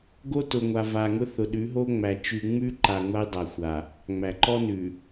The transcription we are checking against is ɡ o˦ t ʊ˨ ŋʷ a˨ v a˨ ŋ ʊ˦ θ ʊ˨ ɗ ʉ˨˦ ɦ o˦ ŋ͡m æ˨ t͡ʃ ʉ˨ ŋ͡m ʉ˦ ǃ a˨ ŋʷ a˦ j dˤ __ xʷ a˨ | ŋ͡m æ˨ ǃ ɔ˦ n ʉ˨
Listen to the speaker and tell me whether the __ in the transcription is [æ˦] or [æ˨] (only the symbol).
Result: æ˨